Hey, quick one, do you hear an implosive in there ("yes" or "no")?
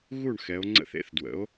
no